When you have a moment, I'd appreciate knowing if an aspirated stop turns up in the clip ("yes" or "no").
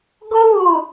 no